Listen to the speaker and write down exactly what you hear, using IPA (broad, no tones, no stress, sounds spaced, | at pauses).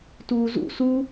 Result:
t uː z ṵ s u